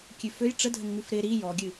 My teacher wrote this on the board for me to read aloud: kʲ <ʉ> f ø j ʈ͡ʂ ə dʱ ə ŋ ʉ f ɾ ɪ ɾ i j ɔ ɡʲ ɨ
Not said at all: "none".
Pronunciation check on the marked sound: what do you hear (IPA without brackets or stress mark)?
ʉ